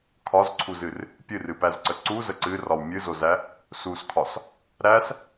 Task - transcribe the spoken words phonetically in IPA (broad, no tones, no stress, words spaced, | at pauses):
kʰɒzǀʰuzɨr | pʲɨrɨpæzǀə ǀuzə ǀɨrɒw mʲɨzozæ | suskʰɒs | ɾæs